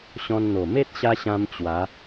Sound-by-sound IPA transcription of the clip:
ɕɔ̃˧nn̪o˨˩ me˦t̚ɕa˧ ɕã˧m t͡ɕwa˨˦

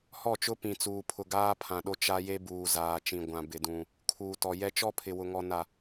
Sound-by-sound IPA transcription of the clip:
hɔ˦˨t͡ʃʊ˦ pĩ˨t͡suː˨ pʰʊ˨ ɡaː˦pʰã˨ɗo˦ t͡ʃa˦je˦buː˨ zaː˨t͡ʃĩ˨ ɡʷã˨bɪ˨dũ˨ | kʰuː˨tɔ˨jɛ˦ t͡ʃɔ˦pʰɪ˨ wʊ˨ŋɔ˨ na˨

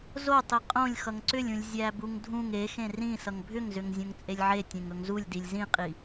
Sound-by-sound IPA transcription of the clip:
zo tˤiqʼõlʲ xʌŋǀʏlʲũlʲ zʲæbuŋdʱũŋ exẽ rĩ sʌŋbʱʏŋzʏŋ zʲõŋt͡sʼelʲʕe tʲẽŋɵŋzulʲ dilʲzĩqʼi

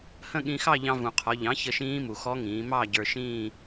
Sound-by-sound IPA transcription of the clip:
hə̃˥˧ ɠĩ˧xɑ˥˧ʎɑ̃˧vũ˩ qʰɔ˩˧ʎɑ̃˩˥ çə˧ʃĩː˦˥mu˩ xɔ˦˥ŋĩː˩˧ mɑ˥˧ ɟə˞˧ʃĩː˥˧

